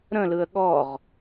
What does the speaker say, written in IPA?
ɾ ə̃ l ɯ ə̯ ɠ ɔ ʁ

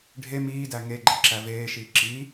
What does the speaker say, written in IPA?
ɖʱ e m iː d æ ŋ e ɡ͡ǃ e ǁ æ v eː ʃ iː ǁ i

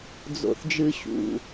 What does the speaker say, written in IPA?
d͡z o̰˨ θ d͡ʒ ɨ˨ ɕ ṵ˨

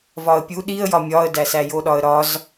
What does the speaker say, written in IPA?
v ɒ ə̯ pʲ u ɗ i ə̯ j ɒ mʲ ɒ ə̯ d æ s æ j o ɗ ɒ ə̯ ɾ ɒ z

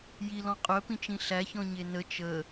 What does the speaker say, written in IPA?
j i l ɔ̃ qʼ œ p ĩ t͡ʃ ĩ ɬ æ ç ɔ̃ ɲ e n ə t͡ʃ ə

